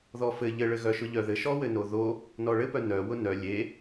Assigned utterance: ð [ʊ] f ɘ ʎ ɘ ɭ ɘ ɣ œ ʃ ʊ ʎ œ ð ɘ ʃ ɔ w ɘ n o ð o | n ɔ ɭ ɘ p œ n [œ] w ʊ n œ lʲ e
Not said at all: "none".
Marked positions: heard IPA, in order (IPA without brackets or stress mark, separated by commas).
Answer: ɔ, œ